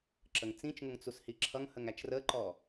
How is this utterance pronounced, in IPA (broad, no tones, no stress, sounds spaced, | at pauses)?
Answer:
ǁ ə ŋ t͡s ĩ t͡ʃ ŋ ʊ ŋ t͡s u s h i ǁʰ ʌ ŋ h ə ŋ æ t͡ʃ r ə ǃ ɔ